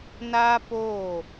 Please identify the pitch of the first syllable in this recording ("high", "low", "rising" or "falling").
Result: high